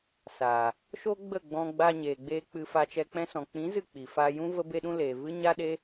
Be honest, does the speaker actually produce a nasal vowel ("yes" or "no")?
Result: yes